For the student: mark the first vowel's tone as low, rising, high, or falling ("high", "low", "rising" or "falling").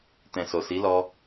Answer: low